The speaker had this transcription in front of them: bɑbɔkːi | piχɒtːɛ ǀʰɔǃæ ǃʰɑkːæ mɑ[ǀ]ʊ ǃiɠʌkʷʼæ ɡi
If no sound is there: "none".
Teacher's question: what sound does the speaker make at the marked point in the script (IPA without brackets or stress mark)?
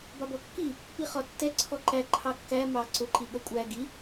ǀ